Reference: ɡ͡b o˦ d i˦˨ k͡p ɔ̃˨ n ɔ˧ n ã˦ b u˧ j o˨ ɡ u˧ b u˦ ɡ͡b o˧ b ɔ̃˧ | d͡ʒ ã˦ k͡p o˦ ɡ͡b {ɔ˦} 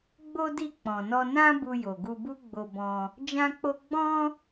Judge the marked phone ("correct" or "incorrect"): incorrect